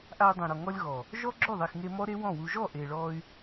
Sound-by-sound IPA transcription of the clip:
ʔa˧i̯dˤẽ˨ɾɔ˨ ŋɔ˧lʲɣɔ˨ | ʒɔ˦ɡ͡ǁo˦˨ðˤi˨x ŋe˧mɔ˦ɾe˦ wɔ̃˦˨wu˧ ʒɔ˦˨ʔe˨ɭɔ˧y̯

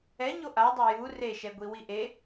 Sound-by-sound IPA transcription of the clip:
ɛɲo ʔadˤɘ ju reʃɛɡʷi wiʔe

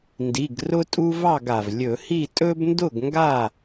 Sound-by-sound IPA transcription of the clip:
ndi˩˧˩ɡ rʊ˦tʼu˦vɑ˥˨ɡa˩v lʲɵ˧˩˧hi˥˨ tʼɵ˦bndʊ˥˨ɡŋɡa˥˨

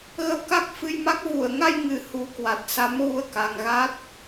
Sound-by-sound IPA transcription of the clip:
ɣə˧wka˦˥k̚fɨ˧jma˦˥k̚ vu˧˩ə̯ŋa˧jŋɨ˨˩ hu˨˦kwa˨˩t̚ sa˨˦mɣu˧ə̯ ka˨˩ŋ ɣa˦˥t̚

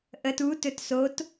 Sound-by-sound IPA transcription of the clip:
ʔət utɵt sot

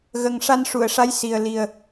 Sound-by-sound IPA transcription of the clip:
ɣə˨˩ŋʂa˧n ʂu˨˩˨ə̯ʂa˧˥jsi˨˩ə̯ li˨˩ə̯

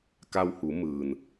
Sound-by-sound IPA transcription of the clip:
ka˧whu˩˧ mɯː˩n

